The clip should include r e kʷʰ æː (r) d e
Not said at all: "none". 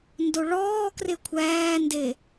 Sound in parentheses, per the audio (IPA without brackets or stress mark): n